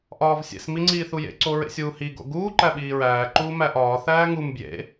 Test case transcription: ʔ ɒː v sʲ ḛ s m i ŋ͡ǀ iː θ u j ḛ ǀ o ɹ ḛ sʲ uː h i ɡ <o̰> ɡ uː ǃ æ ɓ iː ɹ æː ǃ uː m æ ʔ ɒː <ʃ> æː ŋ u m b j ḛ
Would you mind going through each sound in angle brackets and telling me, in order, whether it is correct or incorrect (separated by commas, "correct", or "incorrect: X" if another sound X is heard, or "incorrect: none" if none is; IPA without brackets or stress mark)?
correct, incorrect: θ